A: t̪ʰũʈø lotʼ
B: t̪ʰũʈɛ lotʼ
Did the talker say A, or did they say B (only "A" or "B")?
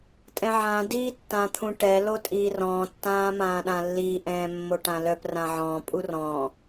B